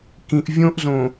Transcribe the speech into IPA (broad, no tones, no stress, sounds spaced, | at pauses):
k ĩ ʔ vʲ õ ʔ z õ